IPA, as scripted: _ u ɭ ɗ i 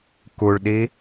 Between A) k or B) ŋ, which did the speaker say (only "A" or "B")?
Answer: A